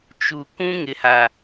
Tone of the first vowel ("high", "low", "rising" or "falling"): low